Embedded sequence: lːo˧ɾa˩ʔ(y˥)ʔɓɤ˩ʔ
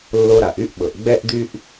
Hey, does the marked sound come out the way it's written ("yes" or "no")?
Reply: yes